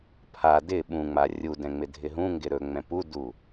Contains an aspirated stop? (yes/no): yes